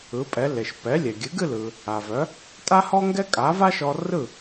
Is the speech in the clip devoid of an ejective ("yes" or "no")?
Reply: no